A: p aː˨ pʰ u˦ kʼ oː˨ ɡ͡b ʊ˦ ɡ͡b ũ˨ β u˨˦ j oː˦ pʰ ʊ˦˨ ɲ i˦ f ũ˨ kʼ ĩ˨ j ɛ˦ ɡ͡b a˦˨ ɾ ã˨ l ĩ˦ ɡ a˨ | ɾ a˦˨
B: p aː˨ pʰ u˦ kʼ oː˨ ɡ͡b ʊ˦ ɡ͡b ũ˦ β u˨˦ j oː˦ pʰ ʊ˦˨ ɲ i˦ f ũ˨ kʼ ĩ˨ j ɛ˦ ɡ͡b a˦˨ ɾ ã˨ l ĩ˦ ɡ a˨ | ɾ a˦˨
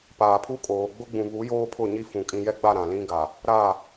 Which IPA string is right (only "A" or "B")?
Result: A